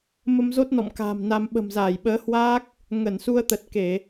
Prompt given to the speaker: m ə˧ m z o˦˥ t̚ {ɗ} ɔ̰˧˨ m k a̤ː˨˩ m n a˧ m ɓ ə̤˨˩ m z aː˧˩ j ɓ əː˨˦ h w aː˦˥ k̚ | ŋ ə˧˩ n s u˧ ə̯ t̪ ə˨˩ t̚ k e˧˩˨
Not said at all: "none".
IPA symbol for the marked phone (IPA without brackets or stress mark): n